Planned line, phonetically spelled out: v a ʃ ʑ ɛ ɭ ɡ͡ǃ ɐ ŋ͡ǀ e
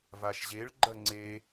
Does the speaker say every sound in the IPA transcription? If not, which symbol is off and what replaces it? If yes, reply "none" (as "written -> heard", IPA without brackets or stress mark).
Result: ɛ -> e